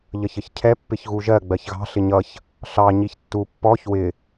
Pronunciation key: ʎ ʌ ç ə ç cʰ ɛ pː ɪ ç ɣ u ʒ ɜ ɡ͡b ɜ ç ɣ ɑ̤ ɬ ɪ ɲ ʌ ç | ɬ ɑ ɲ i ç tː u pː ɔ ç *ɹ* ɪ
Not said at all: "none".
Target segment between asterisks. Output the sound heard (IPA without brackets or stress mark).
w